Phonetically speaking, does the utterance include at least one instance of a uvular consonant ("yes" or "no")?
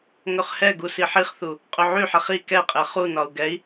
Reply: yes